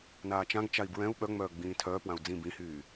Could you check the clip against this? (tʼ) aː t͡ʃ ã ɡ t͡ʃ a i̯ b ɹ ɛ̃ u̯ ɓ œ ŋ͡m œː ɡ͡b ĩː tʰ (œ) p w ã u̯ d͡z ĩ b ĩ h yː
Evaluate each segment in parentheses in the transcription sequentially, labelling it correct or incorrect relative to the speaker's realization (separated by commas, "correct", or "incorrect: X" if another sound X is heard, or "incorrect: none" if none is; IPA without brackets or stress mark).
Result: incorrect: n, incorrect: œː